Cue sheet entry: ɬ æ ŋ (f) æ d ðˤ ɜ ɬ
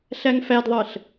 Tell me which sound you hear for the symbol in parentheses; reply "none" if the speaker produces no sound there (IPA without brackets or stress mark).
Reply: f